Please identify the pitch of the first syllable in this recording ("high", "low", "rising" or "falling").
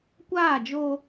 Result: falling